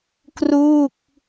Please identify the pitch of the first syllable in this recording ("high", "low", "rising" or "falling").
falling